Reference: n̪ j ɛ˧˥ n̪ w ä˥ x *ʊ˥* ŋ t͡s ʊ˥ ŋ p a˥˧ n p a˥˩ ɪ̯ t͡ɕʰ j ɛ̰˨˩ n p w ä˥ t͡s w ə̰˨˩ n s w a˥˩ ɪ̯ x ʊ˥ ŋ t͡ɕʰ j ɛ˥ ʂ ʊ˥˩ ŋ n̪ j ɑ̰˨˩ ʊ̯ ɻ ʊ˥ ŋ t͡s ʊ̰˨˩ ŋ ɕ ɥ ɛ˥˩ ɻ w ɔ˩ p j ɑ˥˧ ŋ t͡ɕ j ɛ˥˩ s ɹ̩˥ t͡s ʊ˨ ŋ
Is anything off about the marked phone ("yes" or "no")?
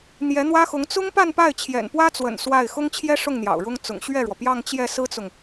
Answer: yes